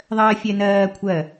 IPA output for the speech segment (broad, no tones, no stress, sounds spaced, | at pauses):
ðˤ ɜː fʲ ɛ n ɜː kʷʰ ɜ